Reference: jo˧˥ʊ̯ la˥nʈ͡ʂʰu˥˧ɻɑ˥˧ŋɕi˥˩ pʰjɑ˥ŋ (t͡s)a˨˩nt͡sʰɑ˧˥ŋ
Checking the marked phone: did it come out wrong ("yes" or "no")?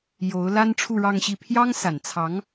yes